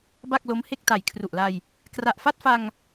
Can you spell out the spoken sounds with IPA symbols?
b a˥˩ k̚ l o˦˥ m h e˥˩ k̚ t a˨˩ j kʰ r u˨˩ ʔ l a˧ j | k r a˨˩ ʔ f a˥˩ t̚ f a˧ ŋ

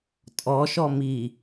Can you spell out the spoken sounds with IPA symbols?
tʼ ɔ ʃ ɔ m i

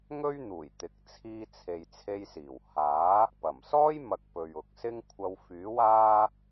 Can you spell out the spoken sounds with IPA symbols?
ŋ ɵ˥ ɥ n̪ uː˨˩ j t̪ ɪ˨ k̚ t͡sʰ iː˧ t͡sʰ e˨ j t͡sʰ e˧ j s iː˨˩ w h aː˨˥ | p ɐ˨˩ m s ɔː˥ j m ɐ˧ k̚ p ɵ˨ ɥ ʊ˨ k̚ s ɪ˥ ŋ kʷʰ ɐ˧ w f yː˨˥ w aː˥

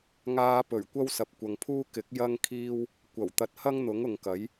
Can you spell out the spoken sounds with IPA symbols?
ŋ aː˧ p ɵ˨˩ ɥ kʷ ɐ˥ w s ɐ˨ p̚ kʷ ɐ˨ ŋ pʰ uː˥ k ɪ˨˥ k̚ j ɐ˥ ŋ kʰ iː˥ w | kʷ ɐ˨˩ w t̪ ɐ˧ t̚ h ɐ˥ ŋ n̪ ʊ˨˥ ŋ ʊ˨ ŋ k ɐ˨˥ j

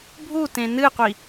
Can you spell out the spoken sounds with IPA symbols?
bʱ u t ẽ n ɨ qʷ i

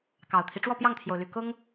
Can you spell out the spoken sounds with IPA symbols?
k ɑ˨˩ ʊ̯ t̪ʰ i˦ ʈ͡ʂ w ɔ˥˨ p j ɑ˥˨ ŋ t̪ʰ j o˩ ʊ̯ l y˨˩ k ʊ˦ ŋ

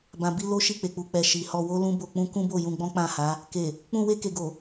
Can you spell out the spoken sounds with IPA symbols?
b ã˨ b i˧ l o˦ ʃ i˦˨ k͡p e˨ k͡p u˨ k͡p ɛ˨ ʃ i˨ h ɔ˧ w o˦ l ũ˦ b o˧ k͡p ũ˦ k ũ˦ b o˦˨ j ũ˧ ɡ͡b ɔ̃˦ k͡p ã˦˨ h a˨˦ | k e˨ | k͡p ũ˧ w e˧ k e˨ ɡ o˨

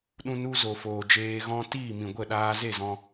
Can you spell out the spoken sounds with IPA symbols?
ɗ ũ˧ n u˧ z o˨ f oː˨ d͡ʒ eː˧ ɣ ɔ̃˦ t iː˦˨ m ĩ˨ ɡʷ ə˦˨ ɗ aː˧ z e˦˨ z ɔ̃˧

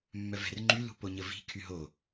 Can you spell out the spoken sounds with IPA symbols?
mː œ v ɛ̤ r ŋ͡ǃ y l ṳ p o ɲ ə v i̤ kʰ y ɦ o

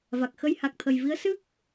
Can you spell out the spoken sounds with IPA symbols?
v a˨˩ k̚ x ə˧ j h a˨˩ k̚ t̪ʰ ə˨˩ j v i˧˥ ə̯ s ɨ˦˥ k̚

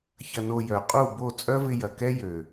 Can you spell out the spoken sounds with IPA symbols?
ç ɐ˧ n o˧ j œ˨ qʼ u˦˨ b o˦˨ t͡sʼ œ˦ v ɪ˧ j ɐ˨ k ɛ˦ j ø˨

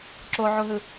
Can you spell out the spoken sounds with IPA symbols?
ǁ o ʕ u ɦ ɯ

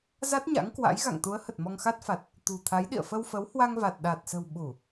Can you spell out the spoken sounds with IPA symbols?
z a˦˥ t̚ ɲ a̰˧˥ ŋ k w a̰˧˥ j ɣ a̰˧˨ ŋ t̪ u˨˦ ə̯ h ə˨˩ t̚ m ɔ˧ ŋ x a˦˥ t̚ f a˨˩ t̚ | t̪ ṳ˨˩ t̪ʰ a˨˦ j ɗ ḭ˧˨ ə̯ f ə˧ w f ə˨˦ w h w a˧ ŋ v a˨˩ t̚ ɗ a˨˩ t̚ s ə̤˨˩ w ɓ u˧˩˨

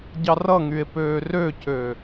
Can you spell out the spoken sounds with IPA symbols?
ɟ ɑ r ʌ ŋ y e̯ p øː r ø c ø

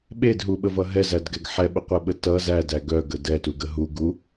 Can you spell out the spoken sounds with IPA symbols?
ɓ e d ɦ u ɓ ə v ʌ ɦ ɛ z æ d ɡ ɛ ɡ ħ ɛ ɓ ə qʷ ɛ ɓ ə t ʌ z æ d æ ɡ œ ɡ ə d ɛ t u ɡ ə ɦ u ɡ u

